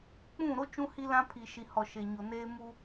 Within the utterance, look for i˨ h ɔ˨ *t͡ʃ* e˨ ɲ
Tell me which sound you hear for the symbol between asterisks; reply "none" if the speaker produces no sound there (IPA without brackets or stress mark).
ʃ